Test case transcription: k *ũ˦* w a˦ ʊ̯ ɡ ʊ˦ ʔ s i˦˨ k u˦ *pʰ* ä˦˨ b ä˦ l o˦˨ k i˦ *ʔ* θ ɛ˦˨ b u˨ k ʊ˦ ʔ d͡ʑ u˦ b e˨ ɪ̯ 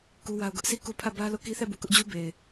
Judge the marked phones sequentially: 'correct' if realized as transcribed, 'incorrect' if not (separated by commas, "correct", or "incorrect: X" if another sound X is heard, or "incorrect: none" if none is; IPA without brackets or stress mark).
incorrect: u˦, correct, incorrect: none